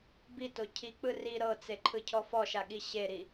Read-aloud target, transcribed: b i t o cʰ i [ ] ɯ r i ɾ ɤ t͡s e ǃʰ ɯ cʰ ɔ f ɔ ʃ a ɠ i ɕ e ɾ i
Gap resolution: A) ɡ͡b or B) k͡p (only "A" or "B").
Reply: B